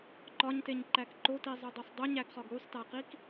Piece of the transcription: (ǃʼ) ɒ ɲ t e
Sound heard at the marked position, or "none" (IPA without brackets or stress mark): ǃ